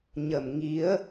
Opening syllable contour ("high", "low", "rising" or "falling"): low